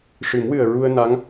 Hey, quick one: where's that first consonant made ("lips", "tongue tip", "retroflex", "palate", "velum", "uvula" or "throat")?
retroflex